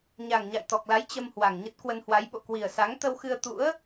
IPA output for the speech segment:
ɲ a˨˩ ŋ ɲ a̰˧˨ j t̪ ɔ˨˩ k̚ l a˨˦ j t͡ɕ ə˧ m h w a˨˩ ŋ ɲ ə˦˥ t̚ k w ə˧ n h w a˨˦ j ɓ o̰˧˨ k w i˨˩ ə̯ s a˨˦ ŋ t̪ ə˧ w x ɨ˧ ə̯ t̪ ṵ˧˥ ə̯

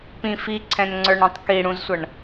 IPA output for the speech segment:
p ĩ f i ǀʰ ɛ̃ n ŋ͡ǀ ə˞ ɳ ĩ tˤ k i ɽ ũ z sʷ ʌ ɳ

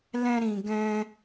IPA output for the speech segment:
l ɛ̃˦ ɾ ĩ˧ ɡ ɛ̃˦

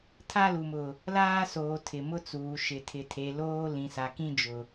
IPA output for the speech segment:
tʰ a˦ l u˨ m ʊ˨ | l aː˦ s oː˨ tʰ ɪ˨ m ʊ˦ t͡s uː˨ ʃ ɪ˨ tʰ ɪ˨ tʰ e˨ l oː˦ l ĩ˨ s a˨ k ĩ˦ d͡ʒ ʊ˨

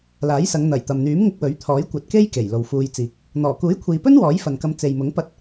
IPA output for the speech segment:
l aː˨˥ j s ɐ˨˧ ŋ n̪ ɐ˨˩ j t̪ ɐ˨ m n̪ yː˨˥ m ŋ ɪ˧ k̚ w ɵ˨˥ ɥ t̪ʰ ɔː˨˥ j kʷ ɐ˧ t̚ k e˥ j k e˨˩ j l o˨ w f uː˧ j t͡s iː˨ k̚ | n̪ ɔː˨˩ k uː˨˥ j kʷʰ iː˨ p ɵ˥ n w ɔː˨˥ j f ɐ˨ n k ɐ˧ m t͡s e˨ j m ʊ˨˥ ŋ p ɐ˥ t̚

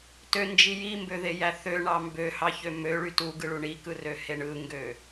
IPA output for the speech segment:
t ø n d͡ʒ i j i m b ø ð e j æ θ ø ɳ ɑ m b ø h ɑ ç ø m ø ɭ y t u ɡ ɯ ɭ u ɳ i k ɯ r ø h e ɳ ɯ ŋ ɡ ø

